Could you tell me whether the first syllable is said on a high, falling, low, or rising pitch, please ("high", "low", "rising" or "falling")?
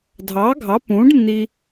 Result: rising